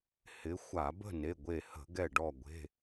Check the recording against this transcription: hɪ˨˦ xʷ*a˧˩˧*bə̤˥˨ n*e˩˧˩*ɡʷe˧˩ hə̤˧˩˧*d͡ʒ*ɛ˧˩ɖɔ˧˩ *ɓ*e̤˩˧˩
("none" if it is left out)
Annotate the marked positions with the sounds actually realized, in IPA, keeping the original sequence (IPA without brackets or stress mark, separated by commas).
a˧˩˧, e˩˧˩, ɡ, ɡʷ